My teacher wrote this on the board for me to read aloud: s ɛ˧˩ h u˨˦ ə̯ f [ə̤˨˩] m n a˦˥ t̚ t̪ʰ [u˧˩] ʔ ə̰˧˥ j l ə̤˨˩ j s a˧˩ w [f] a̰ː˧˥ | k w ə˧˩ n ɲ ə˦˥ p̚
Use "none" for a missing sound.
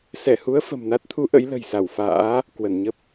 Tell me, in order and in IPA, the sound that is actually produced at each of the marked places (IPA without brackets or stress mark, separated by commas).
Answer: ə̤˨˩, u˨˦, f